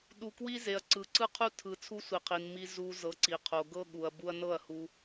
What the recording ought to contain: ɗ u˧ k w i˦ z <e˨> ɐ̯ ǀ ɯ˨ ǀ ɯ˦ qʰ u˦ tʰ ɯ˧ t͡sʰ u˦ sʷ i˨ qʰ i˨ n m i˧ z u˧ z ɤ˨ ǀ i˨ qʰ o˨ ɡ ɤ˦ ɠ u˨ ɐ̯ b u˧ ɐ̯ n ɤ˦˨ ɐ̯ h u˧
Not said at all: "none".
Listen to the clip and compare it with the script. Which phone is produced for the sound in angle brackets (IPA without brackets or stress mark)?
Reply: e˨